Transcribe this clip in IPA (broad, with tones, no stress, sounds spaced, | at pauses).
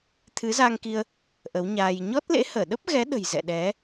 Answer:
t̪ʰ ɨ˨˦ z a˧ ŋ k i˧ ə̯ | ʔ ə˨˦ w ɲ aː˧ j ɲ ɔ˦˥ t̚ l ḛ˧˥ h əː˧˩ ɗ ə˦˥ p̚ ɣ ɛ˨˦ ɗ ə̤˨˩ j z ɛ̰˧˨ ɗ ɛ˨˦